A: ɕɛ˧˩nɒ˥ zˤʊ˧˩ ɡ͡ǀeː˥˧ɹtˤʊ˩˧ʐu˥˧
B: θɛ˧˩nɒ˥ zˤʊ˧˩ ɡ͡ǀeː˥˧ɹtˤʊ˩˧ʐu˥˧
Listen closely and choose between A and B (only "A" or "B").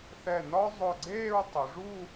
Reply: B